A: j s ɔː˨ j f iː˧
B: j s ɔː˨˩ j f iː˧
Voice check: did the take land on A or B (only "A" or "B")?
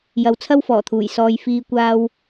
A